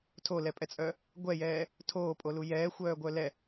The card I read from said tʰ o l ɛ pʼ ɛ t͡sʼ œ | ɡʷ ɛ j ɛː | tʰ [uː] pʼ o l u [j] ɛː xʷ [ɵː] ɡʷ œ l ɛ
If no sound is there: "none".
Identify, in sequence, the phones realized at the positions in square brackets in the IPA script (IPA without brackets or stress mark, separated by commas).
oː, j, œː